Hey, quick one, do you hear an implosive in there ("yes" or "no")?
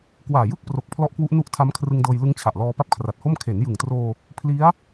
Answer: no